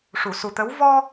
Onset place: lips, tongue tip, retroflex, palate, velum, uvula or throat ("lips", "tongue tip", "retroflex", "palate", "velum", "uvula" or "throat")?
retroflex